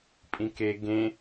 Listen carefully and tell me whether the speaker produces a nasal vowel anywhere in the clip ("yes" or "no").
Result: yes